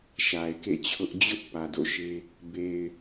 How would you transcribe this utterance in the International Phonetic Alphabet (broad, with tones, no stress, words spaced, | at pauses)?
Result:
ʃa˨ɪ̯kḛ˦˨t͡ɕʰʊ˦ʔ d͡ʑʊ˦ʔ pä˨do̰˦˨ʃe˦ | be˨ɪ̯